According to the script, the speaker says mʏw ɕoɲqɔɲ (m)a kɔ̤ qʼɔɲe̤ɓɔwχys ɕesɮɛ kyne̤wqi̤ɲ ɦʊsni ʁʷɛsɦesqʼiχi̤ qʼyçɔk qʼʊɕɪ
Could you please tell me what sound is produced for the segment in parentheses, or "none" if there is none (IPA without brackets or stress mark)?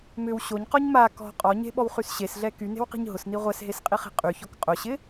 m